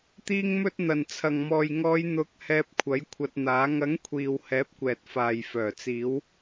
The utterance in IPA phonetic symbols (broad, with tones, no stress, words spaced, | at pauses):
t̪iː˧ŋmɵ˧t̚ n̪ɐ˨˩nt͡sʰɐ˨˩ŋmɔː˨jŋɔː˨˧j n̪ʊ˨˥k̚ hɛː˧p̚kʷʰɐ˨˥jkʷʰɐ˧t̚n̪aː˨˥ ŋɐ˨˥ŋkʷʰiː˨w hɛː˨˥p̚kʷɛː˨t̚ faː˨jfœː˨˩t͡siː˨˧w